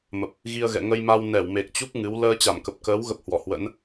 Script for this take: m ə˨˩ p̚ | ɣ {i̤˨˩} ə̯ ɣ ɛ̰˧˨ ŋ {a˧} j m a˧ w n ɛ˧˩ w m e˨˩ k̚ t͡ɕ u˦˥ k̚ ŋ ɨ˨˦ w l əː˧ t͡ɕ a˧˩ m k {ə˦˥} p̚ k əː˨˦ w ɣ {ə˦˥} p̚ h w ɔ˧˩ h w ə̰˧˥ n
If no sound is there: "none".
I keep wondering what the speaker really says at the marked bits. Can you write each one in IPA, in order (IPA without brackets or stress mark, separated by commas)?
i˧, ə˧, ə˨˩, ə˦˥